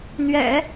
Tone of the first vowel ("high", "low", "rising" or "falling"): low